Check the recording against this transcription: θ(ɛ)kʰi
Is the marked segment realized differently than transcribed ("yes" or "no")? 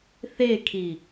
yes